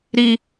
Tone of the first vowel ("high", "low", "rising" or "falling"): high